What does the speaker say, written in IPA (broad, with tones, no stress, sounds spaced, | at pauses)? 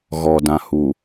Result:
ɣ ɔ˨ d ã˨ h u˨